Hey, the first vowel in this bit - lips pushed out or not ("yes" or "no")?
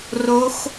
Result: yes